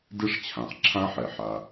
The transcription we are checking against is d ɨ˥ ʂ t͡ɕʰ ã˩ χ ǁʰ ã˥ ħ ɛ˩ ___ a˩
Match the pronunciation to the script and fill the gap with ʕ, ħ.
ħ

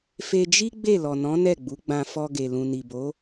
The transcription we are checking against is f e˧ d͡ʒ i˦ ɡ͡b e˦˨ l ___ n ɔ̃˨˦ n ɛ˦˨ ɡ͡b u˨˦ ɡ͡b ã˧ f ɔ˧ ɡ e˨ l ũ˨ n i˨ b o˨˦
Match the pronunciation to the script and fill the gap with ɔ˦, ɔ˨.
ɔ˨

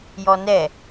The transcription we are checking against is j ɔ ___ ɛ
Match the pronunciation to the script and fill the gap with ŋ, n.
n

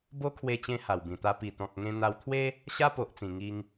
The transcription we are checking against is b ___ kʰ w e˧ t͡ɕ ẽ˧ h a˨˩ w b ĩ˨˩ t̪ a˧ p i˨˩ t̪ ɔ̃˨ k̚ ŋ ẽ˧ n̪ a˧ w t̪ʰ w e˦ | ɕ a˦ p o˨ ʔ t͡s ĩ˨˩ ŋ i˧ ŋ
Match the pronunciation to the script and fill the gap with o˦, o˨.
o˦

